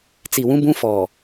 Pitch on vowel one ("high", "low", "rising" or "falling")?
low